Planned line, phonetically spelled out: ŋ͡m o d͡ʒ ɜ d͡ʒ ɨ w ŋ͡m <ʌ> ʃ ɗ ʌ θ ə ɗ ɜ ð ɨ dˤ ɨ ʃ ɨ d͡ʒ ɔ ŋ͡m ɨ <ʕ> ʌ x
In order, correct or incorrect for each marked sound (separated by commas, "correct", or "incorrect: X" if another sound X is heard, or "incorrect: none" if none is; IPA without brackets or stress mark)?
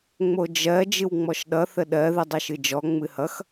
incorrect: ɔ, incorrect: h